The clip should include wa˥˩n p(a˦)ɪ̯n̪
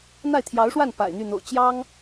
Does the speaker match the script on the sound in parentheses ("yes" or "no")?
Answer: no